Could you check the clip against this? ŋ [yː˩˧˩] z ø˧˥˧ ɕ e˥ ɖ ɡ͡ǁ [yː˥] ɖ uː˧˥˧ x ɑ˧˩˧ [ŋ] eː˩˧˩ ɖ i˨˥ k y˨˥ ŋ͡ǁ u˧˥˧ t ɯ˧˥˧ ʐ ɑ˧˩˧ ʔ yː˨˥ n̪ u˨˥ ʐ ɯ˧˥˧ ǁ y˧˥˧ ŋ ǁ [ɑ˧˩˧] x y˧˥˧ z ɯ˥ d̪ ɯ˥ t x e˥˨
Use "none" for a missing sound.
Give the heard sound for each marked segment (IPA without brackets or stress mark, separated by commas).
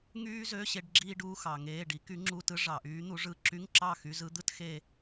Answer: yː˥, iː˥, ŋ, ɑ˥˨